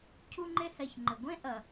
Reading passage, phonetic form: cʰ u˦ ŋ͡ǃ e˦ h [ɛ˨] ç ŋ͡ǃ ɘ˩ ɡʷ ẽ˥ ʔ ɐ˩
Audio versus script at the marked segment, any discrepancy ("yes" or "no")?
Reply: no